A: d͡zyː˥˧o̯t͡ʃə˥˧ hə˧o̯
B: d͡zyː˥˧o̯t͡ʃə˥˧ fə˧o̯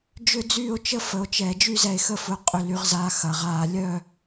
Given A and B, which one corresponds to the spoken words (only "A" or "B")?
B